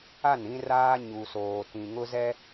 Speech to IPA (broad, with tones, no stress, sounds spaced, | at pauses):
a˦˨ n ĩ˦ r aː˦ ɲ u˨ s oː˨ t ĩ˨ ŋ ʊ˦ z ɛ˦